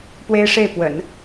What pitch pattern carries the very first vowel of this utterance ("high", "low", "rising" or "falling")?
high